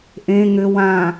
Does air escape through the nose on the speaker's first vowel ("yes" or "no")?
yes